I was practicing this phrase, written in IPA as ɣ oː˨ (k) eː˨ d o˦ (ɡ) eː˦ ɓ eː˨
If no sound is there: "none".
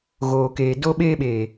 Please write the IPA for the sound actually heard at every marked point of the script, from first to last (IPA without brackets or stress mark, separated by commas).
k, ɓ